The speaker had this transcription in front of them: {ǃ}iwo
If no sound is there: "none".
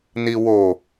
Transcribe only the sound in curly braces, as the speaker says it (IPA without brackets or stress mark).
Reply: n